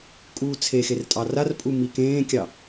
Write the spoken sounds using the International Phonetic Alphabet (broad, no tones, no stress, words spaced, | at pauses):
kʼuːt͡sʰexer tʼɑrarpʼu mikẽːkʲɑ